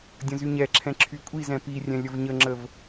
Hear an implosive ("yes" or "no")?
no